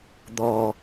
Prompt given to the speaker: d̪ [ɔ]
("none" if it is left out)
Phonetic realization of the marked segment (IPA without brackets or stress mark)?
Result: ɔ